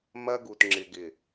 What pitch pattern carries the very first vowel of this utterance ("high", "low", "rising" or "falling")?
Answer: high